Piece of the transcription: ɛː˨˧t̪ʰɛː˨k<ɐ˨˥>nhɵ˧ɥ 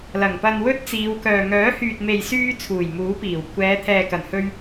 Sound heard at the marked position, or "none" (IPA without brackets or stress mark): ɐ˨˩